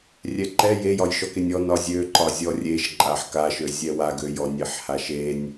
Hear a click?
yes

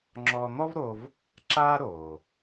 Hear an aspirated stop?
no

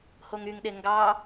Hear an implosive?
yes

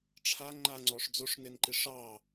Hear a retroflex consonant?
yes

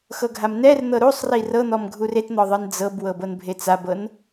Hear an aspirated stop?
no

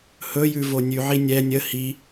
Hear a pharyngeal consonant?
yes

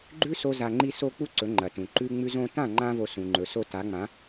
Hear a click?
yes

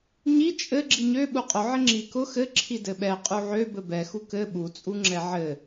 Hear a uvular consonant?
yes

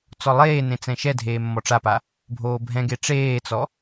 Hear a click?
no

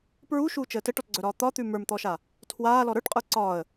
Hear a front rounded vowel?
yes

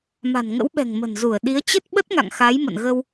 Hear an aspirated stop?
no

